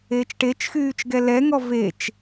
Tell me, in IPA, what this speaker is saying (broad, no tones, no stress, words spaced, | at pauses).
eːt͡ʃʈet͡ʃxyːt͡ʃ ɡɛlɛŋɔ vet͡ʃ